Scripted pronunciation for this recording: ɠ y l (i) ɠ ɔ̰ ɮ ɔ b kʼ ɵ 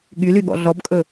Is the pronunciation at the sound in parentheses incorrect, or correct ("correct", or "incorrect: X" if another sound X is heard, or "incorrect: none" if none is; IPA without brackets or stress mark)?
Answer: incorrect: y